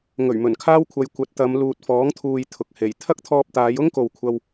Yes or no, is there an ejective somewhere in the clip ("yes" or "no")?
no